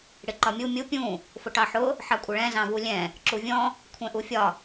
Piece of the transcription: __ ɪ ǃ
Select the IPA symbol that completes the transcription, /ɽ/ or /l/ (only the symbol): ɽ